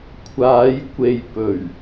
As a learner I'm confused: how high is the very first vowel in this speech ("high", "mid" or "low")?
low